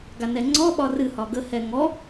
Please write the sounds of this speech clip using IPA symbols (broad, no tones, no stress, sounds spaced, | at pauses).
ɡ a n ɛ ŋ͡ǀ ɔ ɓ ɒ r ɨ h ɒ ɡ ə h ɛ ŋ ɔ